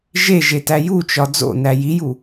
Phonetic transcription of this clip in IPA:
ʒ e ʒ e t æ j u t͡ʃ ɒ d͡z o̰ n æ j i j u

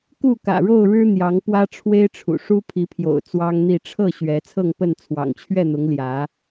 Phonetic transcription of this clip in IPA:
k u˥˨ k ä̰˨˩ ɻ o˥˨ ʊ̯ ɻ ɻ̩˦ n̪ j ɑ˨˦ ŋ p w ä˦ ʈ͡ʂʰ w e˦ ɪ̯ ʈ͡ʂʰ ṵ˨˩ ʂ u˦ pʰ i˨˦ pʰ j o̰˨˩ ʊ̯ t͡s w ɑ˦ ŋ n̪ i˥˨ ʈ͡ʂʰ ɤ˥˨ ɕ ɥ ɛ˨˦ t͡sʰ ɤ˥˨ ŋ p ə˥˨ n t͡sʰ w ɑ̰˨˩ ŋ t͡ɕʰ ɥ ɛ˥˨ n̪ ʊ˨˦ ŋ l j ä˨˦

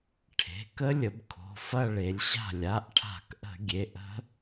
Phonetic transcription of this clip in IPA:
ʈʰ e̤˩˧˩ k ə˦˥ lʲ ə˩˧ b kʰ o̤˩˧˩ f ɐ˥˧ ɭ e˩˧ lʲ ɕ a̤˥˩ lʲ a˩˧˩ ʔ ʈʰ a̤˧˩˧ k ʔ ə̤˧˩˧ ɡʲ e˩˧˩ ʔ ə̤˦˥

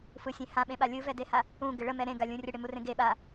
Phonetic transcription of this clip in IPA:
f ɯ sʲ ẽ h ã ɓ ẽ ɓ a lʲ ɯ v ɛ d e h a | ũ ɡ ɪ ɭ ə m ɛ ɾ ẽ ɡ a lʲ ũ rʲ ə ɽ e m u r ẽ ɡ e ɓ a

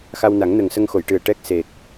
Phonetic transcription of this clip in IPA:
x a˧ w n a˨˩˦ ŋ n ə˨˩ ŋ s ə˧ ŋ x o˨˩˨ j ʈ ɨ˨˩ ə̯ ʈ ɛ˦˥ k̚ s e˨˩ k̚

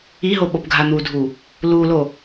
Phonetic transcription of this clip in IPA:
i ɦ o ɓ o p ɡʱ a n̪ u dʱ u | l u l o

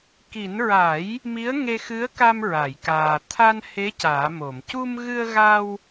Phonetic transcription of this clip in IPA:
k i˨˩˦ n ɹ a˨˩˦ j | m i˧˥ ə̯ ŋ e˧ x ɨ˧˥ ə̯ k a˧ m ɹ a˨˩˨ j k aː˨˩ t̪ʰ a˧ n h e˧˥ c aː˨˩˦ m o˨˩˨ m c u˧ m ɣ ɨ˧ ə̯ ɣ a˧ w

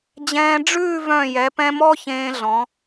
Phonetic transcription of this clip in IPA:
d͡ʑ ɛ̃ː˧ ɖ͡ʐ ʉː˥˧ v œ̃˧˩ j ɛ˩˧ p ɛ̃˧ m ɔ˥ ç ẽː˧ ɮ ɔ̃˩˧

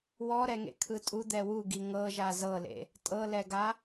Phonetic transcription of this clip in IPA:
w ɔ ɾ ɛ ŋ ḛ kʰ ɯ tʼ u d̪ ɛ w u ɡ i ŋ ɤ ʒ a z ɤ l ḛ | tʼ ɤ l ɛ ɡ a

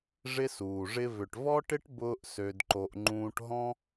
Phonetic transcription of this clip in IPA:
ʐ ɪ˦ s uː˨ ʐ ɪ˦ v ʏ˨ ʈ v ɔ˦ ʈ ɪ˦ ʈ b ʊː˦ ʔ s ø˧ d ǃ o˧ ʔ ŋ͡ǃ ũː˧ ʈ ɦ ɔ̃˦

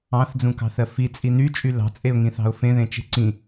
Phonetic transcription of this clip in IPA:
ɑ̃ θ d͡z ũ k ɑ̤ θ ɜ f i t͡sʼ i n y t͡ʃʼ y l ɑ̤ t͡sʼ e ʊ̯ ŋ ĩ θ ɑ̤ ʊ̯ f ẽ ð ẽ t͡ʃ e̤ ǀ ĩ

